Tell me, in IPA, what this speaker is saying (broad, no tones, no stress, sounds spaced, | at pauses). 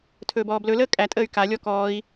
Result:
tʰ ɵː b ɔː b l ɵ l əː kʼ æ tʼ əː y̯ k a lʲ ɔ k ɔː i̯